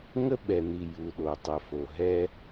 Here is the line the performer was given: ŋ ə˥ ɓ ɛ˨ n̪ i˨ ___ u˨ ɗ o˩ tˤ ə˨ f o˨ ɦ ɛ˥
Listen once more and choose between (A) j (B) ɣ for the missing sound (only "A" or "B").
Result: A